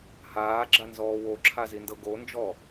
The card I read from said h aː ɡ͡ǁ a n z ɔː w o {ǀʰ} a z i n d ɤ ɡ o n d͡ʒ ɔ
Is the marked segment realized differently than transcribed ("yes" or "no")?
yes